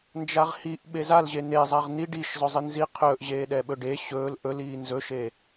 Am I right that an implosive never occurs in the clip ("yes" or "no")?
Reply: no